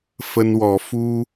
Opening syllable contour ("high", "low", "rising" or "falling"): high